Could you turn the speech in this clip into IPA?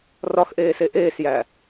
rɒxʔeːse ʔeːsjæ

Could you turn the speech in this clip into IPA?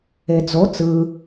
ed͡zo t͡sɯ

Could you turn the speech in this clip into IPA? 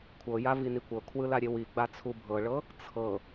kʷʰɤja vinikʷɤkʰwɯ laɾʲewiɡ͡ba t͡sʰubʱɤɭɤ | t͡sʰɤ

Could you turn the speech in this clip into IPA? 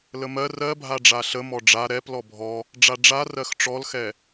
ləmɜ rɜbʱa ɖ͡ʐaɬəmɔ ɖ͡ʐa ɾɛp lɔbʱɔ | ɖ͡ʐaɖ͡ʐa rɜxʈ͡ʂɔlxɛ

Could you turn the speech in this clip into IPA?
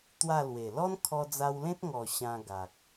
t̪wa˥˧lwe˨˩ lɔ˦nkʰɔ˧d͡za˧wlẽ˦t̚ ŋɔ˨˩ ɕã˧ɡa˨k̚

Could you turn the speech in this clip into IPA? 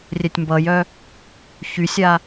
rʲɛtʲmbʌjœ | çysʲa

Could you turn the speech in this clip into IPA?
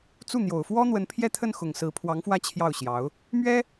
t͡su˥˩n̪jo˨˩ʊ̯ fwɔ˥n̪wə˧˥n pʰjɛ˥˧t̪ʰə˥˩nxʊ˨˩ŋ sɹ̩˧˥pʰwɑ˧˥ŋfwä˥˧ t͡ɕʰjɑ˥˩ʊ̯ɕjɑ˧˥ʊ̯ | mɥɛ˥

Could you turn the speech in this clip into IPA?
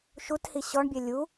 ʃuthi ɕɔɳbʲɛ lʲu

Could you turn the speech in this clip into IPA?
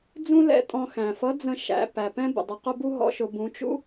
d͡zũ˥lɛ̰˧tʼɔ̃˧ xæ̃˩fʌ˧˥d͡zə̃˧ ʃæ̰˩˧ pæ˩pɛ̃˥ bə̰˩dˤə˧˥qʊ˥ bu˥ɦɔ̰˧˥ʃʊ˩˧ bũ˩˧t͡ʃṵ˥

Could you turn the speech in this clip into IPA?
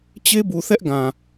t͡ɕe˦bu˨θɛ˦ʔ ɡã˨

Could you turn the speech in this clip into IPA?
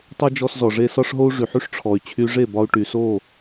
tˤo˥ d͡ʒɔ˧szɔ˩ʐe˧ sɒ˥ʂɦo˥u̯ ʐy˩ħy˥ʂ ʈ͡ʂʰɔ˩y̯t͡ɕʰy˧ʐe˥˩bɒ˧u̯ ʈy˩so˥˩

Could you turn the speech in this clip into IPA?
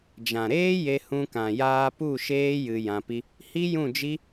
d͡ʒã˨ɾeː˦je˧ hũ˧kã˨jaː˧pu˦˨ ʃeː˦jɨ˧ jã˧pi˦ | hi˦ jũ˦˨d͡ʒi˦

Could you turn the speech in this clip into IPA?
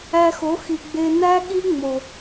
æ˧xo˨˦ xi˨ɡ͡be˧ næ˦ɠi˦ ŋ͡mo˨

